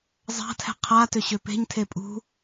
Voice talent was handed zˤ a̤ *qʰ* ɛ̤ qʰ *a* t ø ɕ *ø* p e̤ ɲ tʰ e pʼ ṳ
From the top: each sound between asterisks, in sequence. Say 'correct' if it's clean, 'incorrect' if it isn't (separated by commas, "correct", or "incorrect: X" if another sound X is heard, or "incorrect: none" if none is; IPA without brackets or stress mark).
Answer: incorrect: tʰ, correct, correct